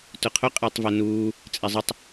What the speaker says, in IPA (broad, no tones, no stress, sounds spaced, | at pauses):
t ʊ qʰ ʊ qʼ ɪː tˤ v ɛ n uː | t͡sʼ ɛ zˤ ɪ tˤ